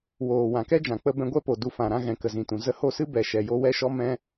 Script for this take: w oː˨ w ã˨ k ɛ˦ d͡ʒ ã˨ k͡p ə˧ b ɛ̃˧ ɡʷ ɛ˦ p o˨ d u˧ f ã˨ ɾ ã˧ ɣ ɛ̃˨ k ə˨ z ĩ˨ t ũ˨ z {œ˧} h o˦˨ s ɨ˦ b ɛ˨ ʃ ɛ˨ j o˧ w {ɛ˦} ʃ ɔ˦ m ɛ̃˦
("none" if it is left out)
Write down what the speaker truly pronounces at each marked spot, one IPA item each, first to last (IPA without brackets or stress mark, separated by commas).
ə˧, ɛ˦